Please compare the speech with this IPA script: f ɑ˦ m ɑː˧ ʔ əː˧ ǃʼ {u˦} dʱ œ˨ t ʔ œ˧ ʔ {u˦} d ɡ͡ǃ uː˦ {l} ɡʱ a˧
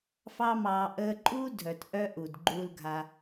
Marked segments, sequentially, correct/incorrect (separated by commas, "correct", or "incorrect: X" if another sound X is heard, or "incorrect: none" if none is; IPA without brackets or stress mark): incorrect: uː˦, incorrect: u˨, correct